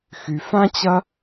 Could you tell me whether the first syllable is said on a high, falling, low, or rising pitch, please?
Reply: low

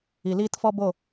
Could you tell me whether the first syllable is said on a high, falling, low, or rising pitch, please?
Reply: low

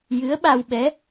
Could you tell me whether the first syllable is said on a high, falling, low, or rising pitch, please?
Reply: rising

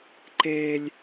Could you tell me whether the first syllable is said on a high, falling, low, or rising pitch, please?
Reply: high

